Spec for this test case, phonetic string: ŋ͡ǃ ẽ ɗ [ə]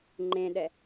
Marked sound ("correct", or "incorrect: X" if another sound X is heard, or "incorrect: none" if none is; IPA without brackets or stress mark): incorrect: ɛ